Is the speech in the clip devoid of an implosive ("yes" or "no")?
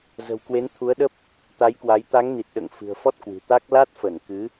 no